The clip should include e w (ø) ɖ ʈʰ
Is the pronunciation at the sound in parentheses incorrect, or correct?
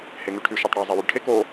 incorrect